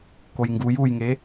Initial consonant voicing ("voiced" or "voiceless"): voiceless